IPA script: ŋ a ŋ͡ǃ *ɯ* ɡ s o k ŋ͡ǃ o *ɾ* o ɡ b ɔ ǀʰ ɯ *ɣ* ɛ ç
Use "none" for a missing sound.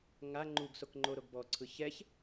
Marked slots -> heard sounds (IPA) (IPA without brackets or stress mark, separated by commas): u, ɾ, ç